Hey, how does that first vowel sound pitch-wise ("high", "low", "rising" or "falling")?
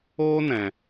high